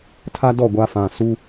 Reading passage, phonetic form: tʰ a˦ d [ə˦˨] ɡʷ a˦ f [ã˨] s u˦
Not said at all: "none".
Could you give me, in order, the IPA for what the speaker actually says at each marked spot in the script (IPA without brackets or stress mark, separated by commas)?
ɔ˦˨, ã˨